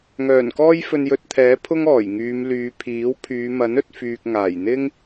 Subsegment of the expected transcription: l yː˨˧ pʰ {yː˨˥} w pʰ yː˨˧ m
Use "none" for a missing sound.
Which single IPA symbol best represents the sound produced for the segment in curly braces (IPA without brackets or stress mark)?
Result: iː˨˥